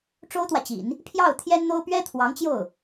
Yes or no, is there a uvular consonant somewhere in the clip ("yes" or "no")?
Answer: no